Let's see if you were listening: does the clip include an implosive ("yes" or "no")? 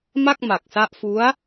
no